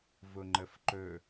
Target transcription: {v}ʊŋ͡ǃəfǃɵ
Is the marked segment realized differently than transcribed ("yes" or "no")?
no